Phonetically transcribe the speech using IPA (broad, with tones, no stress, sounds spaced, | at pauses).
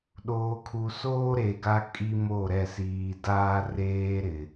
ɗ oː˨ kʰ u˨ s oː˦ ɾ e˨ ɡ a˦ kʼ i˦ m o˦˨ ɾ ɛ˦˨ s iː˨ d aː˦ r eː˦ ɾ ɪ˨